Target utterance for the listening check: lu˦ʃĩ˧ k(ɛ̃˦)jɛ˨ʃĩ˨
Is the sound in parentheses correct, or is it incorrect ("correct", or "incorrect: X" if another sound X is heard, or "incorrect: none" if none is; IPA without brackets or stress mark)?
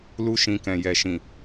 incorrect: ɛ̃˨